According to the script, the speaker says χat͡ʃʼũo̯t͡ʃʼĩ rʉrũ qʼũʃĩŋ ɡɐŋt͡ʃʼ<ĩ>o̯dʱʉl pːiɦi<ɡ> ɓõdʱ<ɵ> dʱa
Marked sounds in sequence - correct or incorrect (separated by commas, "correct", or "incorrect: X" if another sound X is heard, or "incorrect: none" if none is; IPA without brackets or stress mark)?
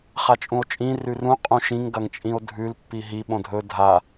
correct, incorrect: none, correct